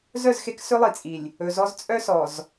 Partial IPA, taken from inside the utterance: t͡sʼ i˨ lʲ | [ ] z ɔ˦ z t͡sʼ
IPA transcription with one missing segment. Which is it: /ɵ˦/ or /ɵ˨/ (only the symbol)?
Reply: ɵ˨